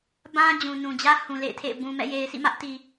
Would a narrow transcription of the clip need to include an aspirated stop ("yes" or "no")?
yes